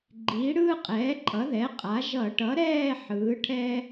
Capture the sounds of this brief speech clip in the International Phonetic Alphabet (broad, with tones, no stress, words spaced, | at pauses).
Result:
ɡ͡ǃiː˩˥ɽɯː˥qʼɛː˩˥ǃʼʌ˩˥ ðɛ˩˥qʼa˩˥ ʒʌ˧˩˧ ʈʌ˩˥ɾɛː˥˧ ħɯː˩˥ʈʰɛ˥